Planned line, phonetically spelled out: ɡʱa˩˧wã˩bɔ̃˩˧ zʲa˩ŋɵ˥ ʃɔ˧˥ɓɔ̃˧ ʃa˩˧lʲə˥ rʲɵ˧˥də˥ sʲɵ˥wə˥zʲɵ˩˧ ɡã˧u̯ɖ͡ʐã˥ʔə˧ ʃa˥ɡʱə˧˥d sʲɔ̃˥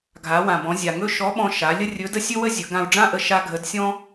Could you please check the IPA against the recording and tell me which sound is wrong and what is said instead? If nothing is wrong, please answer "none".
none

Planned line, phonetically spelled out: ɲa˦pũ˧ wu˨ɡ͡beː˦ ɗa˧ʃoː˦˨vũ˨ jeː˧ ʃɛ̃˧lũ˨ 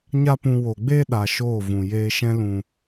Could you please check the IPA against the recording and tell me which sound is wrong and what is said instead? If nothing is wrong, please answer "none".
u˨ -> o˨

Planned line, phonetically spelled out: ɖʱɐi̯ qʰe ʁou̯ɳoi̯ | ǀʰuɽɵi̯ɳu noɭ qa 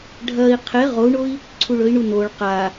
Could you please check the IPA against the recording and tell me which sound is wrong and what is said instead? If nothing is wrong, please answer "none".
ɽ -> ɭ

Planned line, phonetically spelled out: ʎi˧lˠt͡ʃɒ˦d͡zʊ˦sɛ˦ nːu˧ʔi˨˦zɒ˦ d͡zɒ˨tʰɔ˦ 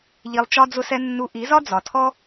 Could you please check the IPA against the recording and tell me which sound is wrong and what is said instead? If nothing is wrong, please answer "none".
none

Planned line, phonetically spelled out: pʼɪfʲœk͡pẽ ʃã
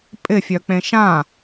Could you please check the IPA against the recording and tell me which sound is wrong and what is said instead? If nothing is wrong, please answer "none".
none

